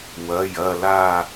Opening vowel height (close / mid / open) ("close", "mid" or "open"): open